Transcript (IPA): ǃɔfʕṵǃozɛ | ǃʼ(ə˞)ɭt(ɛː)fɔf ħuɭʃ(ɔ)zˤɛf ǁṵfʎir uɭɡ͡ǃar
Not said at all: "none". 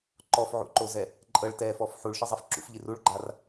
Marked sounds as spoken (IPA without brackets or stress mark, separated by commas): ɤ, ɛː, ɤ